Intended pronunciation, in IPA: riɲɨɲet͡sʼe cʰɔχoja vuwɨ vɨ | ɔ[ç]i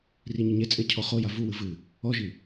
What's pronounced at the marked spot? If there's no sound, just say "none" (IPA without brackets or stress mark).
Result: ʒ